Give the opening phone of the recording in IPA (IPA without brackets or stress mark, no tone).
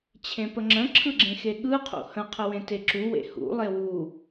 t͡ɕʰ